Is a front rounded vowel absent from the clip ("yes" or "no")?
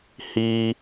yes